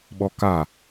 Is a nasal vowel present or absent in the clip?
absent